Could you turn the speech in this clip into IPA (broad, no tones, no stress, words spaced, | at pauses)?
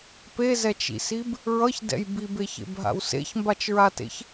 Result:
pezɛt͡ʃḭsib | ɹʌçdɛ̰j bibeçḛbɦa̰w sḛçmbat͡ʃɹatḛç